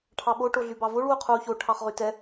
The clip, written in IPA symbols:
ʈʰɑɓo ʈoɮybɑvoɭ wuqʰuːço ʈʰɑχʁytɛ

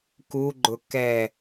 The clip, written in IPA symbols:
kuɡ͡ǃʊ kɛ

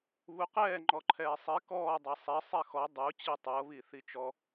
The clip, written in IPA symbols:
βuqɛː ŋ͡ǃɔǃʰɛːsˤi kɔː dˤɛsˤɛ sˤɛxɔ dˤu t͡ɕitˤɤ βiθit͡ʃɔ

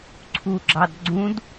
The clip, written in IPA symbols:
ǀʰuɡ͡ǁɑd ɡ͡ǀũd

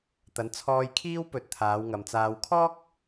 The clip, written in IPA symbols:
t̪ɐ˨˥nt͡sʰɔː˧jkʰiː˥wpɵ˨˥t̚ t̪ʰaː˨˧wŋɐ˨mt͡saː˧w kʰɔː˥k̚

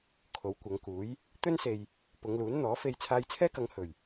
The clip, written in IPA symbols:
kʰo˨˧wkʷɐ˨˧ŋkuː˨˥j | t̪ɵ˥nse˨j | pʊ˨˧ŋluː˨˥n n̪ɔː˨˥fe˧j t͡sʰaː˧jt͡sʰɛː˥kɐ˨˧ŋ hɵ˨˩ɥ

